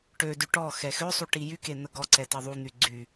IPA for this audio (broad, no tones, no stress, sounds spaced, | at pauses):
ʈ ø d y ʈ ɔ x ɛ x ø sˤ u ʈ i j y k e n̪ ə ɡ ɔ ǀ ɛ t ə ðˤ u n̪ y ɡ͡ǀ y